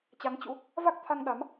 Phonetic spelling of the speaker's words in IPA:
t͡ɕa˨˦ŋt͡ɕṵ˧˥ | va˦˥k̚t̪ʰa˧ŋ ɗa˨˦m

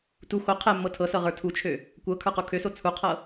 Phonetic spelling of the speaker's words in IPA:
tu xo qʰɛ mːɤtʰɤsɤ ʁə˞tʰut͡ʃʰø | kʷɤ kʰə˞qukʰøso t͡sʰuqʰɤ

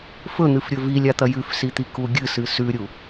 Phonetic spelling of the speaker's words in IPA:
fɵn̪ɨfɾʲɵ vilʲat̪ɐ jʉfsit̪iku ɡʲɨsɨ sʉɾʲu

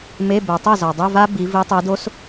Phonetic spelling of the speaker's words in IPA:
me˧˥˧ bɛ˨tˤɛ˥˩ zɔ˨dˤe˧˥˧ va˦˥ bi˨˦ vi˨˦tˤi˨˦do˦˥s

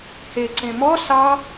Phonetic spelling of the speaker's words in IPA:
heǀẽ mɔ sɑ

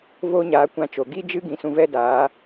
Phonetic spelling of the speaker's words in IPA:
voː˦ɲaː˨˦ kʷã˧t͡ʃo˨ ɡi˦d͡ʒɨ˦ ɡĩ˧sũ˧vɛ˦daː˨˦

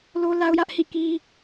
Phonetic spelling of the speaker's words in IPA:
lo˦la˦ʊ̯jä˦ʔ hḭ˦˨ki˦

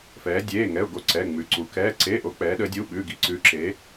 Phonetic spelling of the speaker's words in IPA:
fɛː˩˧dʲeː˩˧˩ ŋɛ˩˧˩ʊ̯ ɡo˩˧˩ ǀɛ˩˧˩ŋ͡mʉ˩˧ǀu˩˧ kɛː˩˧˩ ǀeː˩˧˩ʔo˩˧ k͡pɛː˩˧ɗəː˩˧dʲu˩˧˩ ɓʉ˩˧˩ ɡi˩˧ǀʉː˩˧ǁe˩˧

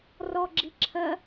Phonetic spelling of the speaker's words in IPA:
rɔɡ͡ǁi ǁʰɜ

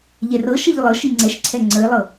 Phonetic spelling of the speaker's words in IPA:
ʎɛrɤʃəʎ lˠɤʃi ŋ͡ǀɛʃǀʰɛ ŋ͡ǀəɪ̯lˠɤ

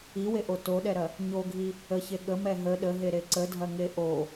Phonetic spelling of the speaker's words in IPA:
iweʔo toɗɛɾɐ | ɲoɡʱi | əçe ɠəmɛ ɦə ɗəɦeɾe ǀədʱɐŋe ʔo

